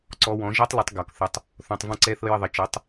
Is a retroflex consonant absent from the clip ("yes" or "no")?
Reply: yes